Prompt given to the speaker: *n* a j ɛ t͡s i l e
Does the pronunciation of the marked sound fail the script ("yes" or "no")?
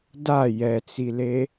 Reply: yes